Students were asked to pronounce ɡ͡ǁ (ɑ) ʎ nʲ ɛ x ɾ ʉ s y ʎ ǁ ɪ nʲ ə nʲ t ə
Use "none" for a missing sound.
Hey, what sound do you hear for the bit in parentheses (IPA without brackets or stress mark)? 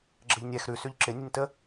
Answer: ə